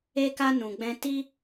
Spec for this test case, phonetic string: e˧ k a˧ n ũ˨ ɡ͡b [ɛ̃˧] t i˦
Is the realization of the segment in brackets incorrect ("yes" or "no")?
no